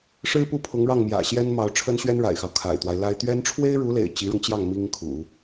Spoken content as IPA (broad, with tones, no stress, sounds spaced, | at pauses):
ʂ ɻ̩˥ p u˥˩ pʰ ʊ˧˥ ŋ ɻ ɑ˥˩ ŋ m j ä̰˨˩ ɕ j ɛ˥ n m ɑ˧˥ ʊ̯ ʈ͡ʂʰ ə˥ n ɕ ɥ ɛ˥ n ɻ a̰˨˩ ɪ̯ x ɑ˦ ʊ̯ kʰ a̰˨˩ ɪ̯ t̪ w a˦ ɪ̯ l a˥ ɪ̯ t̪ ɥ ɛ˥ n ʈ͡ʂʰ w e˥ ɪ̯ ɻ u˧˥ l ḛ˨˩ ɪ̯ t͡ɕ i˧˥ ɻ ʊ˧ ŋ t͡ɕ j ɑ˥˩ ŋ m i˥ ŋ kʰ ṵ˨˩˦